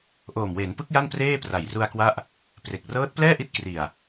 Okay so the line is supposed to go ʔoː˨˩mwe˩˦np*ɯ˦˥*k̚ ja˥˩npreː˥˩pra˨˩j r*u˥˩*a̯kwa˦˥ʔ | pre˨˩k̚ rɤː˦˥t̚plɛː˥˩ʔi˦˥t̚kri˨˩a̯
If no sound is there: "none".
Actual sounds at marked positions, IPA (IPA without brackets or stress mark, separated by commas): ɯ˦˥, u˧